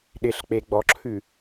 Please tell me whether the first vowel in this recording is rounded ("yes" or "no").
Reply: no